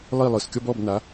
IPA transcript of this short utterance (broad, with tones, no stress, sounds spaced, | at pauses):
lˠ i˦˨ lˠ ɯ˨˩ s kʲ ɔ˦ b ɔ˦˨ b n a˨˦